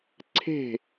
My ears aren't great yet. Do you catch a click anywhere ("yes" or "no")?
yes